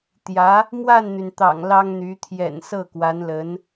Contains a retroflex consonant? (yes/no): no